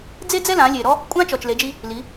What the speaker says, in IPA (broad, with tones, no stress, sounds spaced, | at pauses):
d͡z e˥ d͡z ɛ˥ l ã˩˧ lʲ e˩ ɾ ɔ˥ | kʷʼ ã˥ t͡ʃ ɔ˩ t͡ʃ l e˩˧ d͡ʒ i˧ | l i˩˧